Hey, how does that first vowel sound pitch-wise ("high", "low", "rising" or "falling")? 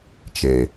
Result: low